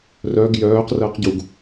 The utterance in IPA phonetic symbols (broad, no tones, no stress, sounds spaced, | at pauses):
r œ ɡ j œː q r əː q ɟ u ɡ